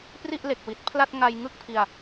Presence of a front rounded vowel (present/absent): absent